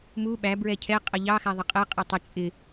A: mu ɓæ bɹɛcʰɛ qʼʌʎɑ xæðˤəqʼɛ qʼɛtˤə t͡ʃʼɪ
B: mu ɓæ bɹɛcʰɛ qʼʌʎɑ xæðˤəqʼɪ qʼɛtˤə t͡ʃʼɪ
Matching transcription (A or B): A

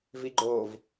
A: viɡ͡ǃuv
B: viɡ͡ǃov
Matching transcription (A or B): B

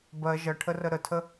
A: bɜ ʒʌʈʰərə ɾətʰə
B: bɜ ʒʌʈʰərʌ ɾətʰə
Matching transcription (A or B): A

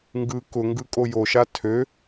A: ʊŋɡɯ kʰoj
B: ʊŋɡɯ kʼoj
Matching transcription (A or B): B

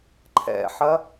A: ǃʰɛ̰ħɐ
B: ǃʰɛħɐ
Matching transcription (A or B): A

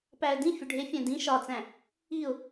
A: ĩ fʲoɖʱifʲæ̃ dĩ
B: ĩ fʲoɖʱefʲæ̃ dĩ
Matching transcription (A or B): B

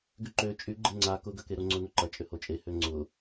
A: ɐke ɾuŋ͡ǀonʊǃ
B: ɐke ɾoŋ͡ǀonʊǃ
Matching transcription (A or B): B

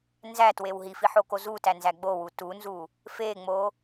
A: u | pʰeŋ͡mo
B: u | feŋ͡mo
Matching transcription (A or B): B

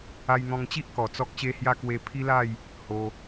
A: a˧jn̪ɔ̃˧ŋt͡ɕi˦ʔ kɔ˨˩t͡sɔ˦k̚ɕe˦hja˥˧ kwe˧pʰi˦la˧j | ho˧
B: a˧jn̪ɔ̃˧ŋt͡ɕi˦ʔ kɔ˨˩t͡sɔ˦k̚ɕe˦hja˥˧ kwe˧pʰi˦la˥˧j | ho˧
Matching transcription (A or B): B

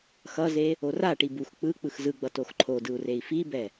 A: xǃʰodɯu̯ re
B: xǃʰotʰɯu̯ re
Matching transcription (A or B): A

